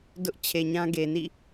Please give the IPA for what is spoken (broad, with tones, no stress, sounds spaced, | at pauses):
d ʊ˦ ʔ t͡ɕʰ e˨ ɲ ã˦ ɡ e˨ n ḭ˦˨